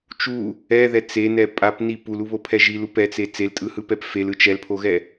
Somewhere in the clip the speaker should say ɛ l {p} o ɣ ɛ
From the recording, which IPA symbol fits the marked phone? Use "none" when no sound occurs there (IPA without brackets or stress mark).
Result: pʰ